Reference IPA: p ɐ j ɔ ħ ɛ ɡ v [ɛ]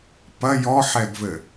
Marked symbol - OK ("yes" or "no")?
no